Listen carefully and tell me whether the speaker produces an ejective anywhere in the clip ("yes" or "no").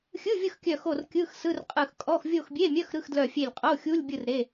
yes